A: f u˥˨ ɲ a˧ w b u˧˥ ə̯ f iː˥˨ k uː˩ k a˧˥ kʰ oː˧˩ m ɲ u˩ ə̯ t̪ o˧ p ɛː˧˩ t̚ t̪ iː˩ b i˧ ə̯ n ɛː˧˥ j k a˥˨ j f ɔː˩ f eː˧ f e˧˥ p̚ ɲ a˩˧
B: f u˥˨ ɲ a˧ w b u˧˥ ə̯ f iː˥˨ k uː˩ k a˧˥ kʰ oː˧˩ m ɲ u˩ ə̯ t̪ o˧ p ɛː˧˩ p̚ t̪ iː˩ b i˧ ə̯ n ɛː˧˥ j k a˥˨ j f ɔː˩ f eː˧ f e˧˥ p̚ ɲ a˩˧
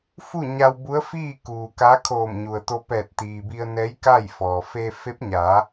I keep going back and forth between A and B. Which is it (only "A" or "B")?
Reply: A